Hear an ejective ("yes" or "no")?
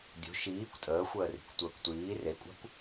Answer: yes